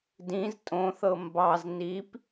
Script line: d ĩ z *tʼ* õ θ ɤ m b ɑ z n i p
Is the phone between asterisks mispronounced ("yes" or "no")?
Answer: no